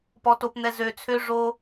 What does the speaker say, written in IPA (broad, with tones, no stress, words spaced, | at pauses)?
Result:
pɔ˦to˦pn̪ɛ˦ zø˧t͡sʰø˦ ʐo˦